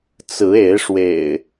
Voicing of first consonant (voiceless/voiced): voiceless